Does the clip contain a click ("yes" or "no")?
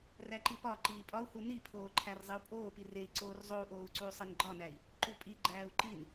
yes